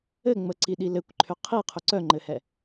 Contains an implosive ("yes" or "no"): yes